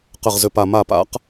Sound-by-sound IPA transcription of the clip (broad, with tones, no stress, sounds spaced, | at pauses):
q ə˧˩ ʁ z ʏ˧˩ p a˧˩ m a˧˩ p a̰˨˦ q